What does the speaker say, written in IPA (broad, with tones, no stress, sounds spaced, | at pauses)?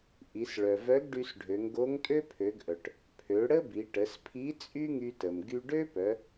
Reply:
ʔ i˩˧ s ɭ œ˩ v œ˧˥ ɡ ɖ y˧ s ɖʱ ø˩˧ ŋ ɡ o˧˥ ŋ tʼ ø˥ pʰ ø˩˧ ɡ ʔ œ˩ ʈ | pʰ ø˩˧ ɽ ə˥ b i˩˧ ʈ ə˩˧ s pʰ i˧˥ t͡sʼ y˥ ŋ y˧ t ə˩ m ɡ y˧ ɖ ø˥ p œ˩˧